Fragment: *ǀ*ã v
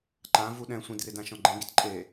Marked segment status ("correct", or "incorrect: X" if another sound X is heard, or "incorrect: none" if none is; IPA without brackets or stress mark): incorrect: ǃ